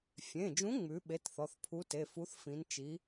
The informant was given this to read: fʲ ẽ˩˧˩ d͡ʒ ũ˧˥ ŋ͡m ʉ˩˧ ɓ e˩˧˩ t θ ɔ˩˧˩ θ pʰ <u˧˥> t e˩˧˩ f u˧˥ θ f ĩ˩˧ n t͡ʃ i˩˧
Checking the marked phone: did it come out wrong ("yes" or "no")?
no